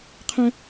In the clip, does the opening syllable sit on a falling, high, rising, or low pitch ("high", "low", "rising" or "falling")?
high